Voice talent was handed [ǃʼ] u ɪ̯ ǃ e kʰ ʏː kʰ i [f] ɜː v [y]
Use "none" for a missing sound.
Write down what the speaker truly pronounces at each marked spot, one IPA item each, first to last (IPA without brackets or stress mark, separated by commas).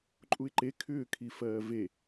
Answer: ǃʼ, f, e